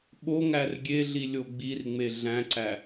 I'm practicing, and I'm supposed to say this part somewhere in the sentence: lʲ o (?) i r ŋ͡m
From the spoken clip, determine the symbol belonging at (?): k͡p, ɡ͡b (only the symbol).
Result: ɡ͡b